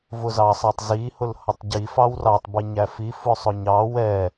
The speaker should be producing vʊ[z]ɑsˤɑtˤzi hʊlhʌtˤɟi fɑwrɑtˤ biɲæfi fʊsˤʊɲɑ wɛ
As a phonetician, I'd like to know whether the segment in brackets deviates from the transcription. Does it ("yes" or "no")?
no